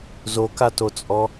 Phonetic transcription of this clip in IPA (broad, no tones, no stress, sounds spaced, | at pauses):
z o k a t o t͡sʼ ɔ